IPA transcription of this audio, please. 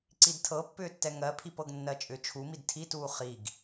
ǀidtʰɤpːʏːtːɛ ŋɜpʰip ɤɡnːɜt͡ʃʼʏ t͡ʃʰumid tʰituː χiɡ

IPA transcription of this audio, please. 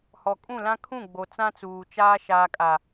hɔ˨kʼũ˦˨lã˦ kʰũ˦˨ɡ͡bo˨ t͡sã˦t͡suː˨ t͡ʃaː˦ ʃaː˨kʼa˨

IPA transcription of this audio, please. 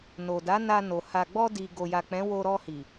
no˨da˨˦na˧no˨ ha˨ɡ͡bɔ˧di˨ ɡo˨ja˨ k͡pɛ̃˨˦wo˧ɾɔ˧hi˨

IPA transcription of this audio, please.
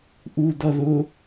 ʔud̪ʌ ðʊ

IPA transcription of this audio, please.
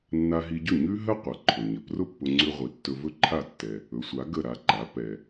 nːa˧ɦi˧ɟɵ˥˩ ɲʉ˥ɦə˥qʷə˩ ǃʰɵ˩ɲə˩ prʊ˥pːʊ˧ŋ͡ǀʉ˧ ʁʷi˩˥ tːɵ˧vɵ˥ǃʰa˥˩ tːɛ˩ | ɵ˩˥sʷa˩˥ ɡə˥˩ ɾa˧ǃa˩˥ pɛ˩

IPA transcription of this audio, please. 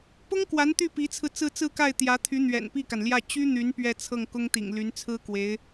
pʊ˥ŋkwa˧˥n t̪y˥˩pi˧˥t͡sʰɹ̩˧ t͡sɹ̩˥˧t͡sɹ̩˥˧ka˥˩ɪ̯ t̪jä˧˥t̪ʰy˧˥ n̪ɥɛ̰˨˩npi˥˩ka˩nljä˥˩ t͡ɕy˥n̪y˧˥n pɥɛ˥˧t͡sʰɤ˥˩ŋkʊ˥ŋt̪ḭ˨˩ŋ ly˧˥nt͡sʰɹ̩˥kwe˧˥ɪ̯

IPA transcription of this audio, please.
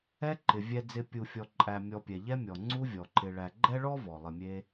ɛ˦ǃɪ˩ vʲɛ˨d͡zɪ˨ pʲu˨fʲɔ˨ǃʼæ˨ mʲɔ˨pʲɛ˩ʎɛ˦mʲɔ˩ ŋ͡ǀu˦vʲɔ˩ǃɪ˨ɭæ˨ ɡ͡ǃɛ˥ɭɔ˥vɔ˩ lˠɪ˨mʲe˦

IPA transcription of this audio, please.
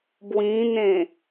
bwĩn̪ẽ

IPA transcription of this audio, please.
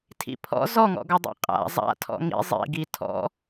tʰḭpʰɔ̰ zɔŋɔ̰ɡɔ dˤḛqʼa̰ zˤa̰ tʰɔ̰ŋḭ zˤḭ ɡitʰɔ̰

